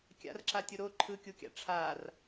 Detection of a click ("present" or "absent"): present